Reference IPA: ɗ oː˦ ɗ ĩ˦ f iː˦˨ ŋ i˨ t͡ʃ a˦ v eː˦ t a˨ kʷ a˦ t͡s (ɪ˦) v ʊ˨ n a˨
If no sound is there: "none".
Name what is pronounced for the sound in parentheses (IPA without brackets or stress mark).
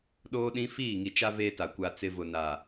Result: ɪ˦